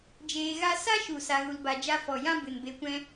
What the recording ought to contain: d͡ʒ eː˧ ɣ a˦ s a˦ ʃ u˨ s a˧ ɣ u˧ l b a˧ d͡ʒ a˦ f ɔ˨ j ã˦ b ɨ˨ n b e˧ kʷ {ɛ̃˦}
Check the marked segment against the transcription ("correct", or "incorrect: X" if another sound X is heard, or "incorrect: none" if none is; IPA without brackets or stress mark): correct